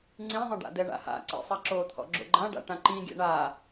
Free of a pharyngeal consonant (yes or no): yes